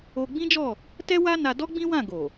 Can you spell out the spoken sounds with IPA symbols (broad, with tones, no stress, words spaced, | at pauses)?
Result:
o˦ ɡ͡bĩ˦d͡ʒɔ˦˨ | tɛ˦ wa˦na˧dɔ˦ ɡ͡bĩ˦wã˦˨ ɡo˨